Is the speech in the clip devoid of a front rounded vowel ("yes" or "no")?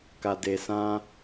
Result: yes